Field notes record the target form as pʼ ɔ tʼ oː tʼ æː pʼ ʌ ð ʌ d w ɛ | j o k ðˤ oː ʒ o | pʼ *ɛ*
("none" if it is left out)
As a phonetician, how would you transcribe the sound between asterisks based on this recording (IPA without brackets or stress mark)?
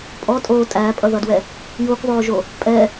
ɛ